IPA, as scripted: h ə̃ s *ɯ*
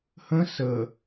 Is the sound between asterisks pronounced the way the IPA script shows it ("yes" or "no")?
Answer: no